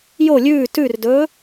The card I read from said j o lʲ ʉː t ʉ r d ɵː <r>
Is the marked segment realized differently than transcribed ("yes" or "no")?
yes